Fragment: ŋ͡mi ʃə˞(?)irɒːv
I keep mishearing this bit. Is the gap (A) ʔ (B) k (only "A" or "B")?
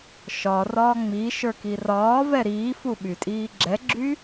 B